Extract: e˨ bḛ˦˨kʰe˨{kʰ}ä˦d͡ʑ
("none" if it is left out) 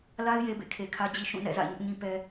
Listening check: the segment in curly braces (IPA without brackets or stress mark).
kʰ